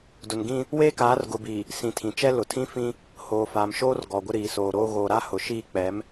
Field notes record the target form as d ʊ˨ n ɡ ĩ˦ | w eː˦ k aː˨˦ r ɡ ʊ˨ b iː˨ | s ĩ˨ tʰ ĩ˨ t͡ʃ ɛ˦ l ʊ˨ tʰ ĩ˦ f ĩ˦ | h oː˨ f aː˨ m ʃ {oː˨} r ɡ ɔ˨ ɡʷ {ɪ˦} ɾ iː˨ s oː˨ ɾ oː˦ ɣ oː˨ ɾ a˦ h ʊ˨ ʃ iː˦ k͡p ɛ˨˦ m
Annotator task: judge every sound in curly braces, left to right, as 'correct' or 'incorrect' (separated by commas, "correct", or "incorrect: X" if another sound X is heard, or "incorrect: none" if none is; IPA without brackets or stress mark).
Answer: incorrect: oː˦, correct